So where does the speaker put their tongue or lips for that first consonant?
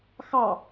velum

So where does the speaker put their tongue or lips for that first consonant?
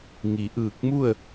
velum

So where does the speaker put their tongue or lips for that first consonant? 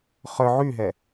uvula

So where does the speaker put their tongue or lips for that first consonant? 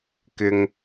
velum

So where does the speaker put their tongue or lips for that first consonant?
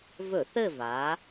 lips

